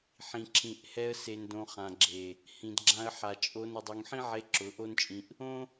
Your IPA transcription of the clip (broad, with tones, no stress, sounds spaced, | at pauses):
ħ ĩ˨ ǁʰ ĩ˨ ʔ h ɛ˧ ə̯ s e˨ n d õ˨ χ ã˨ ɡ͡ǁ e˨ | h ĩ˨ d ɡ͡ǁ ã˧ ə̯ ħ a˨ t͡ʃʼ o˧ n ʊ˨ dˤ u˨ ŋ ħ ĩ˦ ʕ e˧ ǁ ʊ˨˦ ʔ o˦ n t͡ʃʼ ĩ˧ ʔ | õ˦